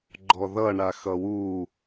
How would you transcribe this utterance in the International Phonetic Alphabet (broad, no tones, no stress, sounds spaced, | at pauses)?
ɡ͡ǃ ɔ ð ʌ ɳ a x ʌ w u